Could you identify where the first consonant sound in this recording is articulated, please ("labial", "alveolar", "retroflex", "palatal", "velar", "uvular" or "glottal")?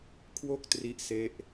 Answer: velar